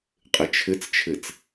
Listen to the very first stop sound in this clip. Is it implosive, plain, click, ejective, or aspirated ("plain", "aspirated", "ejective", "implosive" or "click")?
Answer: ejective